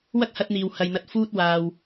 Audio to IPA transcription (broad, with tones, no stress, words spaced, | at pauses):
wɐ˥k̚hɐ˧t̚n̪iː˨w hɐ˨jn̪ɐ˨˥t̚ fuː˧t̚waː˨w